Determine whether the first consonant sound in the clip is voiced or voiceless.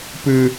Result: voiceless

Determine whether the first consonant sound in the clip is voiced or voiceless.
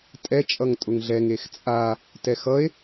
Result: voiceless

